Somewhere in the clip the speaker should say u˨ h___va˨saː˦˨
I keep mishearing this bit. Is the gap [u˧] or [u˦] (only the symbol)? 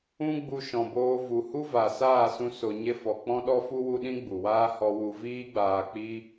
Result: u˦